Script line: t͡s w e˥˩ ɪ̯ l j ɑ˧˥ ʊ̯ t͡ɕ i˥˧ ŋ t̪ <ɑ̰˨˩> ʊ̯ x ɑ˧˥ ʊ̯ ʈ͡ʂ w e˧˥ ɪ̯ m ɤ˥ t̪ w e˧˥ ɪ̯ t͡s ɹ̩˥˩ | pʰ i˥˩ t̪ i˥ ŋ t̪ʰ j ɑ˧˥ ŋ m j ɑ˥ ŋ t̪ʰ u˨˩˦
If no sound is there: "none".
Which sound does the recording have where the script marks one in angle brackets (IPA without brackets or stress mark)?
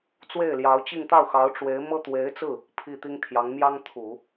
ɑ˥˩